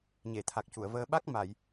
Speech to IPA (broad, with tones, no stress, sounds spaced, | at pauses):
ɲ e˨˩˨ t̪ʰ a˨˩ k̚ c u˨˩˨ ə̯ v əː˧ ɓ a˦˥ k̚ m a˨˩˨ j